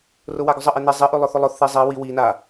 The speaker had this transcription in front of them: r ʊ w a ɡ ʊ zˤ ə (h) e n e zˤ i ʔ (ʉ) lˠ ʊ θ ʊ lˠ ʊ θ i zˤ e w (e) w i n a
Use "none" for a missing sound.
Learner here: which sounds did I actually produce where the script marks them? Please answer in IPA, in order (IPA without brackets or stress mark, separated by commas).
ʔ, ʉ, i